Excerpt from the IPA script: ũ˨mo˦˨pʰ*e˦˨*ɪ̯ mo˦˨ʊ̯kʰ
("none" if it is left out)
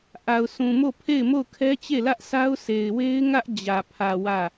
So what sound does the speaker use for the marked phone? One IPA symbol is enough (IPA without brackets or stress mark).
e˦˨